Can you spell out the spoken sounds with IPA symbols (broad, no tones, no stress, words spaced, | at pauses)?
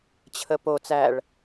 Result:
t͡ɕʰəpo t͡sæɭ